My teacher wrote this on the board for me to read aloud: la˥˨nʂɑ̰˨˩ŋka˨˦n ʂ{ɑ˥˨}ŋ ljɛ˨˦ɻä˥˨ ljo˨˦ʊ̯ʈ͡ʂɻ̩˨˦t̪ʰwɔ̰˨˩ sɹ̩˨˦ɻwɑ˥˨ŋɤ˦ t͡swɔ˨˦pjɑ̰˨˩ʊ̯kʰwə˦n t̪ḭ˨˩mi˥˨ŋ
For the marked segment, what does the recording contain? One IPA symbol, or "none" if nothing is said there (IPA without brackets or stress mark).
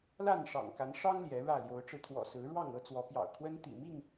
ɑ˦